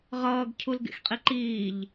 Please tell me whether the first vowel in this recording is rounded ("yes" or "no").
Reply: no